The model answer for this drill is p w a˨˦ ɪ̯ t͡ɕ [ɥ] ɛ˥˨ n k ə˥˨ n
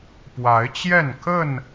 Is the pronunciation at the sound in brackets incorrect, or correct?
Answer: incorrect